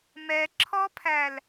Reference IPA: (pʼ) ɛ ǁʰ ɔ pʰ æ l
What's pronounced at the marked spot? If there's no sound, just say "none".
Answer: m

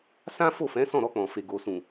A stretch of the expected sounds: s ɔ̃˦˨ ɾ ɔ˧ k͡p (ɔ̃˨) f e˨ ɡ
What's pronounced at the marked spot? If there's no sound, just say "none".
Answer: ɔ̃˨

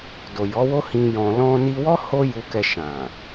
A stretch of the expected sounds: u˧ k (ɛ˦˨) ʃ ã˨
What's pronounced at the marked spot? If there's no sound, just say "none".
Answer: ɛ˧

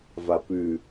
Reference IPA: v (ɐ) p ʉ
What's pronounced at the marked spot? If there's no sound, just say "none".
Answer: a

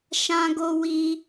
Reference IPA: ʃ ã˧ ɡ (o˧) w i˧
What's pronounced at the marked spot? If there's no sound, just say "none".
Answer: o˧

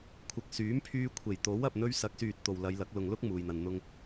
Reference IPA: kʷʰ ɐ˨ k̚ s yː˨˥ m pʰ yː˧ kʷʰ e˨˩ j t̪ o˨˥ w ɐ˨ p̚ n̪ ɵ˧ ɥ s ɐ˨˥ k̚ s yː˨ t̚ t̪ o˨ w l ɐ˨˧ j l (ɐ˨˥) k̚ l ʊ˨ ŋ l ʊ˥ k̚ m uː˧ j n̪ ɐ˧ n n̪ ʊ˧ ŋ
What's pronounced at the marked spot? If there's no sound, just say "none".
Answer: ɐ˨˥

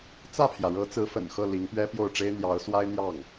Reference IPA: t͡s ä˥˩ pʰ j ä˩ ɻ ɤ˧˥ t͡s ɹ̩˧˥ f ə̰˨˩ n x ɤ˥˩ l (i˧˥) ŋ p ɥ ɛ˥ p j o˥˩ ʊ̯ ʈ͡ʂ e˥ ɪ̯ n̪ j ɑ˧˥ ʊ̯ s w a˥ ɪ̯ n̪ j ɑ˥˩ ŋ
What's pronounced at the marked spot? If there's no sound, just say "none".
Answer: i˧˥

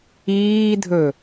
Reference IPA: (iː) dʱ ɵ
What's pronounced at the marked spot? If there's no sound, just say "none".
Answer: iː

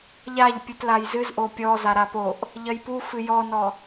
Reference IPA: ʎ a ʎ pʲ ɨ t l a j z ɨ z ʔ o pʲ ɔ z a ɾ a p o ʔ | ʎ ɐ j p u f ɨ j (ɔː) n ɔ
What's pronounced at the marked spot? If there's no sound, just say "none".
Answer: ɔ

